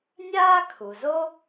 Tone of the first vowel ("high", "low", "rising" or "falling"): high